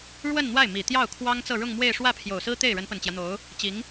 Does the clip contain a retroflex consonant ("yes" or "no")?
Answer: yes